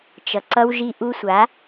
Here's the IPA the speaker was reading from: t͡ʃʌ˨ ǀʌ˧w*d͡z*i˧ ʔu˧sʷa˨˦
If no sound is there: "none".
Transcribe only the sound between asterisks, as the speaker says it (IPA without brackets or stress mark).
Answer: ʒ